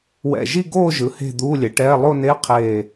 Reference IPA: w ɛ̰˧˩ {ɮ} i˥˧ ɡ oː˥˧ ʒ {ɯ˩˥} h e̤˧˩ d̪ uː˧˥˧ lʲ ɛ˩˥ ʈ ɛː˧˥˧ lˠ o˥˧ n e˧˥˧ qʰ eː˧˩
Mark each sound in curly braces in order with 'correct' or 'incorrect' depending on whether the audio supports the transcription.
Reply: incorrect: ʒ, correct

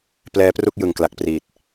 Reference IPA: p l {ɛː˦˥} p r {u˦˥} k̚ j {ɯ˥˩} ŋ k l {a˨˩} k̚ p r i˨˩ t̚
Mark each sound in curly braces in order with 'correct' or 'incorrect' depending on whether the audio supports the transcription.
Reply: correct, incorrect: u˥˩, incorrect: ɯ˨˩, correct

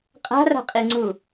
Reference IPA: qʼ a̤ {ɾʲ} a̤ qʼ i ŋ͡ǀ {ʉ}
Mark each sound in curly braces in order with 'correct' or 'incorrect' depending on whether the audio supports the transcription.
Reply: incorrect: r, incorrect: u

